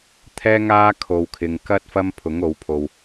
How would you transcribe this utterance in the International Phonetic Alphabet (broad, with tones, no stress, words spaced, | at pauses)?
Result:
t̪ʰɛː˥ŋaː˥kʰo˨wkʰɪ˨ŋ kɐ˥t̚ fɐ˥mpʰʊ˨˥ŋo˨˧wpʰo˨w